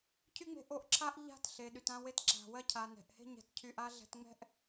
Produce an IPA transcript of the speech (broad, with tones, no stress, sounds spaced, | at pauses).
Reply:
cʰ y˦ ŋ͡m e̤˧ ʔ o˨ ʔ ǁʰ a˦ ʔ ʎ a̤˦ t ɬ e˨ ɗ y˨ t ã˧ w e˧ t ǁ a̤˨ w ɜ˧ cʰ a˨ n ɛ̤˨ ʔ h e̤˦ ɲ ɛ̤˧ t cʰ y˧ ʔ a˦ ɮ ɛ̤˧ t ŋ͡m ɛ̤˦ ʔ